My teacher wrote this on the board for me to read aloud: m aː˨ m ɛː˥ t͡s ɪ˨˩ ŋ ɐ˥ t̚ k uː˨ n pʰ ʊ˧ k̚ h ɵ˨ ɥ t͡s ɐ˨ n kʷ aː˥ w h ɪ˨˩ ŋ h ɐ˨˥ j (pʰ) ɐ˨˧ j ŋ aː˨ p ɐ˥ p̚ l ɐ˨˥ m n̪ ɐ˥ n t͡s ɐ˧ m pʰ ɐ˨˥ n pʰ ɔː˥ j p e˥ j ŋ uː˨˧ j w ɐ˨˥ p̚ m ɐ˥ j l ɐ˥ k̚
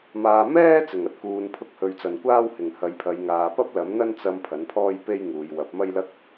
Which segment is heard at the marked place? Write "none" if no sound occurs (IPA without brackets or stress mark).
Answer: pʰ